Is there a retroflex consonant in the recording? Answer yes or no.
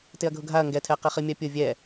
no